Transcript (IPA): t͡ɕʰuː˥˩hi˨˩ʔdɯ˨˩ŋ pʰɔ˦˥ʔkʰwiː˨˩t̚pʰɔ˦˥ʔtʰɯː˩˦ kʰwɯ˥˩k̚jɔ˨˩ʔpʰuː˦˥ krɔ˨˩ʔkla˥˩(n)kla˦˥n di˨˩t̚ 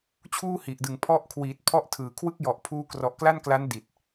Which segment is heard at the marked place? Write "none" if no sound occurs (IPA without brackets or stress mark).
n